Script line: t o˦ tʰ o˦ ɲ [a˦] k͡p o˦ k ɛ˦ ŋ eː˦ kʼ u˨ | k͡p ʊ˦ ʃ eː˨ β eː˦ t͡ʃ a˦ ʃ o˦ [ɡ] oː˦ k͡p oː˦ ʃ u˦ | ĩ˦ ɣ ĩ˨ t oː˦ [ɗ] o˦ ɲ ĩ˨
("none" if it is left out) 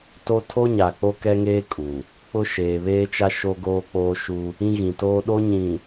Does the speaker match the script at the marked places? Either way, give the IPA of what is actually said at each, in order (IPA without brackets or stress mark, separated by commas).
a˨, ɡ, ɗ